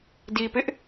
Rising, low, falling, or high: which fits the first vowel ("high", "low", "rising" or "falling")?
low